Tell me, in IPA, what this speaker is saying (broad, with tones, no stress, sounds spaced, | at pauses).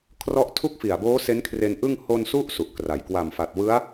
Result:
kʰ r ɔ˦˥ ʔ tʰ u˥˩ k̚ f i˨˩ a̯ b oː˦˥ s e˦˥ n kʰ r e˧ n ʔ ɯ˥˩ ŋ h o˧ n s u˦˥ ʔ s u˨˩ ʔ k r a˨˩ j k w a˨˩ m f a˨˩ t̚ w ɯ˦˥ a̯